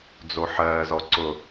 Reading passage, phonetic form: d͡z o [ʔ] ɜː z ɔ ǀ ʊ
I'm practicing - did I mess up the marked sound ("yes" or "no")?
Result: yes